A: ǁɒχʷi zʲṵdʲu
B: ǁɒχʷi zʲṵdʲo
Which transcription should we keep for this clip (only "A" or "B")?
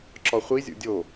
B